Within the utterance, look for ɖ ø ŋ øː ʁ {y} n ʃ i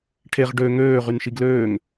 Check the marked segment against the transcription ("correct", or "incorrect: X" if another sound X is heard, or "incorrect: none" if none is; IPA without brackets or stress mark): correct